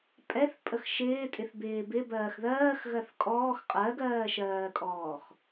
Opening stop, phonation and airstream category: ejective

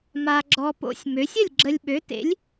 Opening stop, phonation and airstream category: click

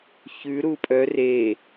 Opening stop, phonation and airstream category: ejective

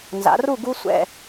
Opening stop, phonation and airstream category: plain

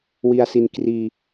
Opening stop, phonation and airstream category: plain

